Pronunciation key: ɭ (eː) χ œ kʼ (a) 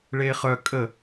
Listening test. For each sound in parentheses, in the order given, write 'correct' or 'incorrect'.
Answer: correct, incorrect: ə

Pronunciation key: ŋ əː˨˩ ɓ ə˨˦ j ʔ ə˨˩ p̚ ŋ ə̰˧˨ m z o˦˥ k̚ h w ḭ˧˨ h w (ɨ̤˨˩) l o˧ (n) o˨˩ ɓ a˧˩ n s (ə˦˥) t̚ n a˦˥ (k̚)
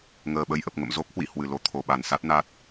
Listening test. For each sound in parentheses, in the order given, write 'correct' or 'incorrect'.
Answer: incorrect: ɨ˧˩, incorrect: t̪ʰ, incorrect: a˦˥, incorrect: t̚

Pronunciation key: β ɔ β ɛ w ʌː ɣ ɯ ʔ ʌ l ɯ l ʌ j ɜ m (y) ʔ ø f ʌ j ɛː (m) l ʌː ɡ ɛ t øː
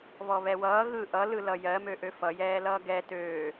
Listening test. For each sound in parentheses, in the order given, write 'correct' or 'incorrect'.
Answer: incorrect: ø, incorrect: none

